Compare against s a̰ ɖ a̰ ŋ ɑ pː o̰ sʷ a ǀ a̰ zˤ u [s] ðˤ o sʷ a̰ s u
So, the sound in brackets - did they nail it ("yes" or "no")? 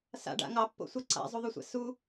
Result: no